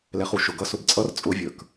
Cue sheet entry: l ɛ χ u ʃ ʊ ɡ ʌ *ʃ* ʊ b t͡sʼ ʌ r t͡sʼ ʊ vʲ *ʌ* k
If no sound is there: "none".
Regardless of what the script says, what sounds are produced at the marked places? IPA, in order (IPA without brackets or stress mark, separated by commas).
s, ə˞